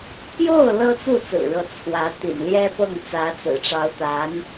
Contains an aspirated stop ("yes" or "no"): yes